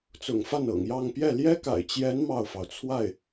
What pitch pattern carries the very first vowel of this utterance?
low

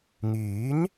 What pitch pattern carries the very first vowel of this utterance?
rising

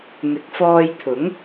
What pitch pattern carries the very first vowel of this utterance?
rising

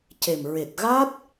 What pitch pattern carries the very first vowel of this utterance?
low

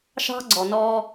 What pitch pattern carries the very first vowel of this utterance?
high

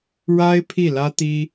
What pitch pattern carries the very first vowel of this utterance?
high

